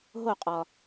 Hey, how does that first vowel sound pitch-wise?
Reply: falling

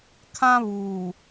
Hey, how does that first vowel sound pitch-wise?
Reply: high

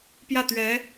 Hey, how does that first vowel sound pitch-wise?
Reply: falling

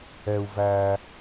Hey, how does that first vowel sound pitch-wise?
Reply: low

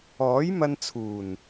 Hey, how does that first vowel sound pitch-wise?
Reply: rising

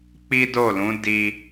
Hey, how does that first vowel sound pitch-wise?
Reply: high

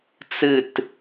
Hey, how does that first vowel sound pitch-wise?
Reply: falling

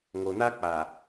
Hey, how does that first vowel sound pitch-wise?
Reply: low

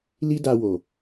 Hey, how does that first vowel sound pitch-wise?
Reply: high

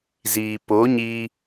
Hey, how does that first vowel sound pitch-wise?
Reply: low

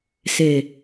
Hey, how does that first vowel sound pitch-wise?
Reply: low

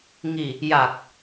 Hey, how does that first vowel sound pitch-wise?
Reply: low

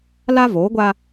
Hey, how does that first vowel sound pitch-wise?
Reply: high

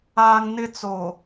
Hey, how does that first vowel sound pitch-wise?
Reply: high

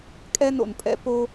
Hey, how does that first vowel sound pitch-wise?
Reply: high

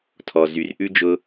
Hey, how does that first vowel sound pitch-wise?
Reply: low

